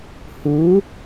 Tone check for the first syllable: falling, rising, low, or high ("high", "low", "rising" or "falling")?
rising